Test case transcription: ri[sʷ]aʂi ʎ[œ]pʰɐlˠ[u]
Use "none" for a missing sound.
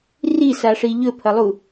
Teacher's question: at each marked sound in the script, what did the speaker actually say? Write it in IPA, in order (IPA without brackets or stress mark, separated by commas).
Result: s, ɵ, u